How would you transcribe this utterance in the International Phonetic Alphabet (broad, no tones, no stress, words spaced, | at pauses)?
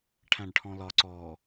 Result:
ʈʰæ̃ɖʈʰɔ̃lɒ ǀɔ